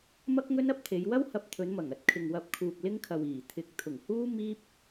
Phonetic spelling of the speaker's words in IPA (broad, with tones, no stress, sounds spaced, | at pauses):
m ɐ˥ k̚ ŋ ɵ˥ n ɐ˥ p̚ t̪ʰ e˨˧ j w ɐ˥ w h ɐ˧ p̚ t̪ʰ ɵ˨˧ n m ɐ˨˩ ŋ ɐ˨ t̚ kʰ ɪ˨ ŋ w ɐ˧ p̚ kʰ uː˨ k̚ l ɪ˥ ŋ kʰ ɐ˨ w iː˨˩ t̪ʰ ɪ˨ k̚ t̪ʰ ʊ˨˩ ŋ h uː˥ m iː˥ p̚